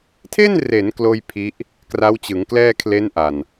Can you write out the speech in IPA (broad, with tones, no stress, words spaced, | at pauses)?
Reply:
tʰe˥˩nre˩˦n kloː˥˩j pʰi˦˥ʔ | kra˦˥wt͡ɕɯ˩˦ŋ klɛː˥˩kʰle˦˥n ʔa˨˩n